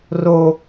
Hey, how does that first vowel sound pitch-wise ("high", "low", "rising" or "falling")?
high